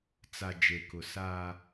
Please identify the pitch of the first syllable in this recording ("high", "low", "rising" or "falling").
low